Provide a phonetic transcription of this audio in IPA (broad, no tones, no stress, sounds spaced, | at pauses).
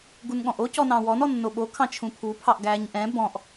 ɡ u n ɠ ɔ̃ ʔ o c ɔ n ɑ̃ w ɔ n ɔ nː o ɓ o kʰ ɑ̃ t͡ʃʰ ũ pʰ u pʰ ɑ ʔ ɡ æ ɲ ʔ ɛ̃ b ɔ̃ ʔ